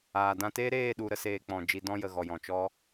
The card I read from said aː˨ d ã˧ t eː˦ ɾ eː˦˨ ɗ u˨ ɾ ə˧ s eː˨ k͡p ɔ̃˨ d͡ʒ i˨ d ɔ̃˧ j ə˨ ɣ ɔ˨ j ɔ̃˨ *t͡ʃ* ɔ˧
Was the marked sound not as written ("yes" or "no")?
no